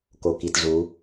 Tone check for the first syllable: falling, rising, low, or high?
low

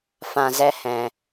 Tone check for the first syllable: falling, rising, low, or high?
low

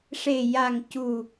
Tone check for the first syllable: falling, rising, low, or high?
low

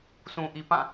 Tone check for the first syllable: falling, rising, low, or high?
low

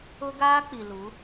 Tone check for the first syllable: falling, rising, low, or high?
high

